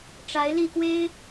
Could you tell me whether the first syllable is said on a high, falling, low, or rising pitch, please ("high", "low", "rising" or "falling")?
rising